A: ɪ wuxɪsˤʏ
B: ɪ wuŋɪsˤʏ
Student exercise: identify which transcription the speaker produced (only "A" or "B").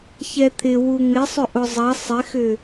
B